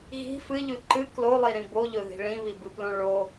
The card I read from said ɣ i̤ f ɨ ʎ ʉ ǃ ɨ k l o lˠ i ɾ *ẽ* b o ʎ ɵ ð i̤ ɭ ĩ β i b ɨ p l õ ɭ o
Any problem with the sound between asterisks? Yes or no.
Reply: yes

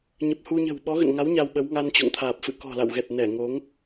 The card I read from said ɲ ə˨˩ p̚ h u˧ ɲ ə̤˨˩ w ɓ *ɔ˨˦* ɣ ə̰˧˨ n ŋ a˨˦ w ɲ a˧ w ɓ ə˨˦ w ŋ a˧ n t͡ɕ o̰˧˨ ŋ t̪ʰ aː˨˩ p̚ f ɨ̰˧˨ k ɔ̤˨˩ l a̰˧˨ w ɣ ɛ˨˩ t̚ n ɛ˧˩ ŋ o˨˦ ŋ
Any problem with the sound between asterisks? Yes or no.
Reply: no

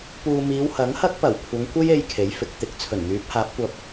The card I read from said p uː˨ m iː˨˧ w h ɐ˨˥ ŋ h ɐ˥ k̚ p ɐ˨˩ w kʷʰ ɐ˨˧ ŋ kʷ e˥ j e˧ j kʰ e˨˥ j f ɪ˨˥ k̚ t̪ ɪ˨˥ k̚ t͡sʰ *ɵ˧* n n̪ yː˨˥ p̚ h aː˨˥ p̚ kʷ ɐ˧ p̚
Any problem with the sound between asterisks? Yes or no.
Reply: yes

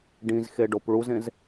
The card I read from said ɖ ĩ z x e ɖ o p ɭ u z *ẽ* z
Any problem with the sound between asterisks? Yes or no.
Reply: no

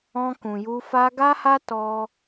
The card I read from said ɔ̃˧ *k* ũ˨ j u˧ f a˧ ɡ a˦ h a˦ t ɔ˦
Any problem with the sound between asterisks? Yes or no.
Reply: no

